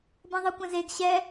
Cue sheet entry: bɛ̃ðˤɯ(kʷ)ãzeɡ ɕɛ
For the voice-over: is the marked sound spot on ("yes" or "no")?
yes